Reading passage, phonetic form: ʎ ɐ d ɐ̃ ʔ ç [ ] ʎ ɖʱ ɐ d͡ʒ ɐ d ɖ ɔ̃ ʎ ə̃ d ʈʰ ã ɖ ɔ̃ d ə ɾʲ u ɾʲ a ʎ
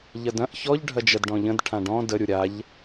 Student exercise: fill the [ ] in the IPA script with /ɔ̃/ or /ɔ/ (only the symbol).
ɔ